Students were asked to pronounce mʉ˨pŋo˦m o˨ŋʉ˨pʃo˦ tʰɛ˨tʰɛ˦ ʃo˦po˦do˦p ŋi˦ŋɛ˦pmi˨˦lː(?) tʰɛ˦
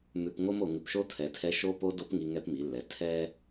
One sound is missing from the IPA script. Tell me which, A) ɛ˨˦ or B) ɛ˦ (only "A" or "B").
A